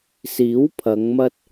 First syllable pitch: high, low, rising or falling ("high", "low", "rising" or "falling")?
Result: rising